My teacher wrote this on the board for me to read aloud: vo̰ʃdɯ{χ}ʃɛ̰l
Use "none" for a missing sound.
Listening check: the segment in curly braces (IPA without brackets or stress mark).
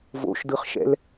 χ